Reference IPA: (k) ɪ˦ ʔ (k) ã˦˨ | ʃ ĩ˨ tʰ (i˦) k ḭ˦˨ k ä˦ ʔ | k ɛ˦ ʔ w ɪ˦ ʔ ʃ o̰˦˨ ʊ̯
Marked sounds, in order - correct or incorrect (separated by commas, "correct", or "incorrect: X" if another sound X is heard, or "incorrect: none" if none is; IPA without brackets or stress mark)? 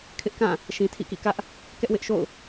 incorrect: kʰ, correct, incorrect: ḭ˦˨